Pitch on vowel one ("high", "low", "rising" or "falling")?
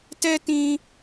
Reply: high